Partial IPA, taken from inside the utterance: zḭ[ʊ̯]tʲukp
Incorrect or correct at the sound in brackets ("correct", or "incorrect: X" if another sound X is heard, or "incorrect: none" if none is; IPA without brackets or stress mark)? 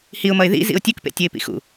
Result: correct